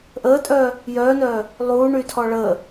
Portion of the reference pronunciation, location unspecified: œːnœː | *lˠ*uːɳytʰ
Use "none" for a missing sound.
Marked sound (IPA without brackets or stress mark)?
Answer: lˠ